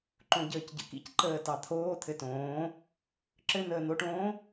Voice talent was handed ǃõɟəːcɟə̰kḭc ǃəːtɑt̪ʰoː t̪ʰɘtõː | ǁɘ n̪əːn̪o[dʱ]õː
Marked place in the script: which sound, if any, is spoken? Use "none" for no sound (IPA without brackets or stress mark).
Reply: ʈ